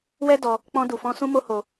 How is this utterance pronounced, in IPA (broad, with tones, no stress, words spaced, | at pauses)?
wɛ˦dɔ˧ | k͡pɔ̃˧du˨fɔ̃˧ sũ˦mo˦ho˧